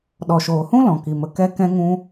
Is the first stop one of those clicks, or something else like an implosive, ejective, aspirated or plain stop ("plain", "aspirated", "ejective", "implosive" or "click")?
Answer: implosive